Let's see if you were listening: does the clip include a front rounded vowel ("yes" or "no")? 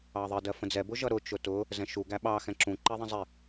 no